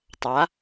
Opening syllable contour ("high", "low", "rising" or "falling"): rising